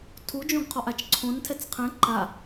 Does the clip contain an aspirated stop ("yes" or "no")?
yes